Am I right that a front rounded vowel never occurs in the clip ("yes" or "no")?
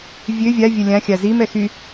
no